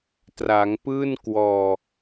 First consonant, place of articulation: alveolar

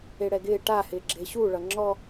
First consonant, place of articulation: retroflex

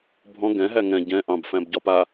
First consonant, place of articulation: labial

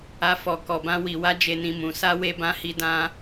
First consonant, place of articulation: labial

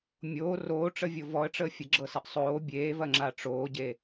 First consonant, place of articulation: labial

